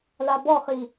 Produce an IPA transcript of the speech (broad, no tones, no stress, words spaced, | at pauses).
labɔχi